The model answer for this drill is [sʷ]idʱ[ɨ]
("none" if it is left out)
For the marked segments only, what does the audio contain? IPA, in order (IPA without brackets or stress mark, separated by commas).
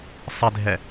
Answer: sˤ, ɛ